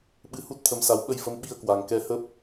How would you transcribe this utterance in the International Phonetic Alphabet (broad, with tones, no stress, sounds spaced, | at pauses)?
ɓ ɨ˧ h u˦˥ t̚ t̪ʰ ə˨˦ m s a˨˦ w ɓ ə˧ j f ə˨˦ m ɓ i˧ ə̯ k w a˨˩ ŋ k ɛ˨˦ h ə˦˥ p̚